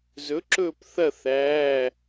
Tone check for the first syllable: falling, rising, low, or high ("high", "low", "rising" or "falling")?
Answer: rising